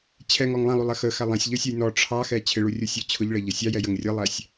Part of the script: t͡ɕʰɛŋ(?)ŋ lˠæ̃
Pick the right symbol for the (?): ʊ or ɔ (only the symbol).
ɔ